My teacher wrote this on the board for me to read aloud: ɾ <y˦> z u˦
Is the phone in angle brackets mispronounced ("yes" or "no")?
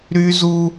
no